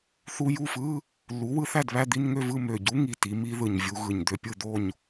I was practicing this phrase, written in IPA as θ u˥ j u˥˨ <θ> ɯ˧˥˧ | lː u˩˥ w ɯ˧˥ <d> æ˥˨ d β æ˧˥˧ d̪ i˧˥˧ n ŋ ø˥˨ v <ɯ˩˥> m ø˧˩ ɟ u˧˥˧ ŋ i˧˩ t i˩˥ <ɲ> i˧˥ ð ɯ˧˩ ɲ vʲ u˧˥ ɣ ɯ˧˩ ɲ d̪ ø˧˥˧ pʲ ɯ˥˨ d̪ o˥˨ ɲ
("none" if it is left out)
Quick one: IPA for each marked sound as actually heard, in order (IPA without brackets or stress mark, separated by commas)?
f, θ, ɯ˥˨, m